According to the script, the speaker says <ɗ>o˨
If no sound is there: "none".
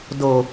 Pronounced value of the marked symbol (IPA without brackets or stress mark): d